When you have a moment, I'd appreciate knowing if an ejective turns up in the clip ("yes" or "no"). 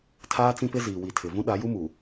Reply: no